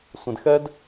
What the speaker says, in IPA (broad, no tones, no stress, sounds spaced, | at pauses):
sʷ ẽ d x ɛ d